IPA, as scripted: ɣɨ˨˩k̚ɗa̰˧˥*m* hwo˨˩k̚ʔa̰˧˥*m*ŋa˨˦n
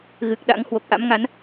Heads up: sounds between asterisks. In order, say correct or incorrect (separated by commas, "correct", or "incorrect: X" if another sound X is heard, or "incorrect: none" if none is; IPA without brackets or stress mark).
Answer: incorrect: ŋ, correct